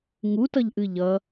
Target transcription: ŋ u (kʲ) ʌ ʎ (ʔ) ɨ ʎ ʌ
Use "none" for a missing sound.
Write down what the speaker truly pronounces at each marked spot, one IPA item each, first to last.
t, ʔ

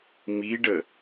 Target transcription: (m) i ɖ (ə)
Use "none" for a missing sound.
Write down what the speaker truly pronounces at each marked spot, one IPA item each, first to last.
m, ə

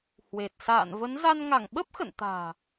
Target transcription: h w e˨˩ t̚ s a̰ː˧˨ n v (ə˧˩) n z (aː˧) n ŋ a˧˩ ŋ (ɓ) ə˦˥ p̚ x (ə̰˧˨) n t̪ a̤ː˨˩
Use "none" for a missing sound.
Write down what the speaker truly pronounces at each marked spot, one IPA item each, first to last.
ə˨˦, a˧, ɓ, ə̰˧˨

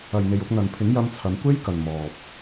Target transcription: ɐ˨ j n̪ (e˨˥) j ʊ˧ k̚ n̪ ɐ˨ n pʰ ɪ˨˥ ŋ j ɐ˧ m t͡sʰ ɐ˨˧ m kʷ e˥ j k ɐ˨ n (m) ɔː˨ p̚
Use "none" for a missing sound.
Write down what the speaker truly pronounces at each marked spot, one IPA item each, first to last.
e˨, m

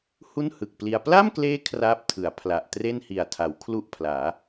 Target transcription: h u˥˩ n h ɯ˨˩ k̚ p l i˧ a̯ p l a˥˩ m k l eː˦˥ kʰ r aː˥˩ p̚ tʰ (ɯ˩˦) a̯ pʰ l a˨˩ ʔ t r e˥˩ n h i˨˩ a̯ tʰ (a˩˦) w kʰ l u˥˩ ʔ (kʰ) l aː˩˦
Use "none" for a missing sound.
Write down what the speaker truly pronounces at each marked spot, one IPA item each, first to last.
ɯ˩˦, a˩˦, pʰ

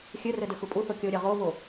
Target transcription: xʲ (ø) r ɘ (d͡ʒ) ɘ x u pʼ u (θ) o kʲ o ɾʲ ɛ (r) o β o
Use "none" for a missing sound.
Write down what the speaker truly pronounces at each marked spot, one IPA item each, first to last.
ɘ, d, θ, ʁ

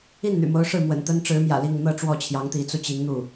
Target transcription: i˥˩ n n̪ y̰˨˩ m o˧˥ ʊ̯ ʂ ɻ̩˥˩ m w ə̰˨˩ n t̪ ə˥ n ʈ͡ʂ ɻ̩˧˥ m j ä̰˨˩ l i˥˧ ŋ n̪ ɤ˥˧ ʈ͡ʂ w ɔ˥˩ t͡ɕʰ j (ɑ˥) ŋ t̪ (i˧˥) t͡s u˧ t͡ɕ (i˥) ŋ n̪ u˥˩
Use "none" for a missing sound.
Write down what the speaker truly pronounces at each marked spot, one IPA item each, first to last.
ɑ˧˥, i˧˥, i˧˥

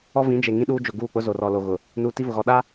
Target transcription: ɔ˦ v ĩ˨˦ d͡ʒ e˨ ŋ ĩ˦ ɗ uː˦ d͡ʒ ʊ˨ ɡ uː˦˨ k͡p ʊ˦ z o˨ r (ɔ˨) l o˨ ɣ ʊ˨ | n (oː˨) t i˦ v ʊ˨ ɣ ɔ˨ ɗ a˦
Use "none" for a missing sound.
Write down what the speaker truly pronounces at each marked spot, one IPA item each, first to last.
ɔ˨, uː˨

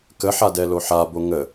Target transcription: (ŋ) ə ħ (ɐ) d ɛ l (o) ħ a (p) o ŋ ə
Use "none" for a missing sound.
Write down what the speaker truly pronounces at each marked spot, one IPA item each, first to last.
k, a, o, b

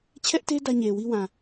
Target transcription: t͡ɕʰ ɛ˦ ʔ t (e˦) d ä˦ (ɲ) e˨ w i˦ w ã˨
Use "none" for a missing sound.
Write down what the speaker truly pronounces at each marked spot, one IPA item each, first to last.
e˦, ɲ

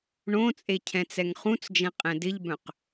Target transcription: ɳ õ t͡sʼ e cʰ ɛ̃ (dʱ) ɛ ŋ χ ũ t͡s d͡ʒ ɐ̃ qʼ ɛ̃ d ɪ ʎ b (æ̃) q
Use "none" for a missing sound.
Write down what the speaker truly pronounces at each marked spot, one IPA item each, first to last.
t͡s, œ̃

